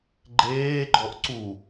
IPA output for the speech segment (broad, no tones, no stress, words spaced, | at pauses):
ɡ͡ǃeːɡ͡ǃɔʔ ǀu